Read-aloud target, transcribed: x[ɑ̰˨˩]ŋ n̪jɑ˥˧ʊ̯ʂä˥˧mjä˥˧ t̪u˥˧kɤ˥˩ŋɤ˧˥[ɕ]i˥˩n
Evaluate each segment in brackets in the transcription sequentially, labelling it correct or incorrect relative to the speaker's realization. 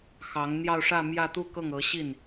incorrect, correct

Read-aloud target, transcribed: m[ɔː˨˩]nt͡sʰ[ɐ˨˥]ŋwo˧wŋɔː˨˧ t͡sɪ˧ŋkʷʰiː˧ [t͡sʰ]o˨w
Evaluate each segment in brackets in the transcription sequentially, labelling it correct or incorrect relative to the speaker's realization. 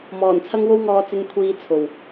correct, incorrect, correct

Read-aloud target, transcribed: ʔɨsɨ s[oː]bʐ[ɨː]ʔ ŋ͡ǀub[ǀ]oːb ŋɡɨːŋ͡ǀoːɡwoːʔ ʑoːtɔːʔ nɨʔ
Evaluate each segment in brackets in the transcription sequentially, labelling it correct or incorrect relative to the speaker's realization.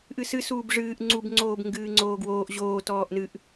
incorrect, correct, incorrect

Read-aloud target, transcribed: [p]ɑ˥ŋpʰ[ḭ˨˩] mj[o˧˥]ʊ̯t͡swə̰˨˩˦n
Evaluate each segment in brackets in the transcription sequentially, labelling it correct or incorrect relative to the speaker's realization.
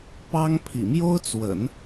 correct, correct, incorrect

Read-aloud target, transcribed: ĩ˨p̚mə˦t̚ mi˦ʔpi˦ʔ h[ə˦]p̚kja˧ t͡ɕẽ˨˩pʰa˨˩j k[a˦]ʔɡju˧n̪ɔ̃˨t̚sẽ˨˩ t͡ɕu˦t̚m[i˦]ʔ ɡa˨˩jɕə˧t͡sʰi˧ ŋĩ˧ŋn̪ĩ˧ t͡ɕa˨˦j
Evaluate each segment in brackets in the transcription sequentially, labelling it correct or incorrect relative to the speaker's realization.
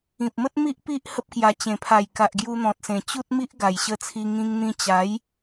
correct, incorrect, correct

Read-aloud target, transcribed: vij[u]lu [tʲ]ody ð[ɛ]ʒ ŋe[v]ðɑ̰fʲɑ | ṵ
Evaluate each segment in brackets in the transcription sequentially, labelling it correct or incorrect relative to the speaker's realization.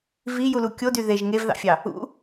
correct, incorrect, incorrect, correct

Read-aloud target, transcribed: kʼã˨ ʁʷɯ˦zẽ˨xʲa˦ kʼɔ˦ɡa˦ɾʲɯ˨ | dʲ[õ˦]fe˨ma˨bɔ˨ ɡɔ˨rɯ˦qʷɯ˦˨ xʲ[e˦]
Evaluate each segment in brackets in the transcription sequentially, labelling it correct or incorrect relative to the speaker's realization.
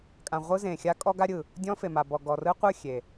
incorrect, incorrect

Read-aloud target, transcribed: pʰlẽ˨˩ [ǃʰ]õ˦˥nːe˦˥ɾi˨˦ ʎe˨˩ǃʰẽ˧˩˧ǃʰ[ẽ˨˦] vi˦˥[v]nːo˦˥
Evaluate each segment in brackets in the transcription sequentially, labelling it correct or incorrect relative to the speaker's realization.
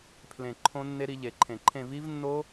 correct, incorrect, correct

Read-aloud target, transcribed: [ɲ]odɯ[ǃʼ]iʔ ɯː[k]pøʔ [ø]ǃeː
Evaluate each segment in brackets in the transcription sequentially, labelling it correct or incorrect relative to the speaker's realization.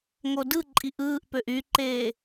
incorrect, correct, incorrect, incorrect

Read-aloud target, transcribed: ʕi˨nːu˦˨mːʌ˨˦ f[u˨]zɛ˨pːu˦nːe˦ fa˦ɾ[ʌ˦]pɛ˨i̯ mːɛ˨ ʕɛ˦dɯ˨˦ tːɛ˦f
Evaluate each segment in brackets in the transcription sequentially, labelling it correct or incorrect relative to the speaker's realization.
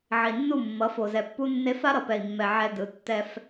incorrect, incorrect

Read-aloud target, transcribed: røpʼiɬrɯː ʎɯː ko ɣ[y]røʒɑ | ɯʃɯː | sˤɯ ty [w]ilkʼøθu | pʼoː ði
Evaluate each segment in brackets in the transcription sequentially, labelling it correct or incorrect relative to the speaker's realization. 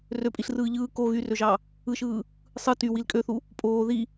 correct, correct

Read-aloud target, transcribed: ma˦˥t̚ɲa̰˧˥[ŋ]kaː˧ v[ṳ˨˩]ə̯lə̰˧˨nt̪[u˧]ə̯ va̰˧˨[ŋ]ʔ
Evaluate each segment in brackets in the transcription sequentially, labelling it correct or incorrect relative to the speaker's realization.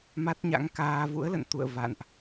correct, incorrect, incorrect, incorrect

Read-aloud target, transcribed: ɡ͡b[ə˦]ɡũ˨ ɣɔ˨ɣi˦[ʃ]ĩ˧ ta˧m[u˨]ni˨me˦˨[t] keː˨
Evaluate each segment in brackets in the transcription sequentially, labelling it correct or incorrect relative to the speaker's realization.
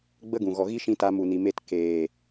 correct, correct, correct, correct

